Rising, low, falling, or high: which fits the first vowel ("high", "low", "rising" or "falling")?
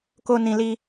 high